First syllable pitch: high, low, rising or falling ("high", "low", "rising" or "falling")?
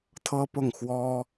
high